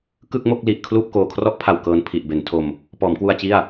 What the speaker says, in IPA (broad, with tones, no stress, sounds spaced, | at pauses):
k ɯ˥˩ k̚ m o˥˩ k̚ l i˨˩ ʔ kʰ l uː˥˩ p̚ k oː˨˩ kʰ r ɔ˦˥ ʔ pʰ a˨˩ w k ɤː˧ n pʰ i˨˩ ʔ b e˩˦ n tʰ o˧ m | p ɔː˩˦ m k w u˧ a̯ t͡ɕ i˥˩ a̯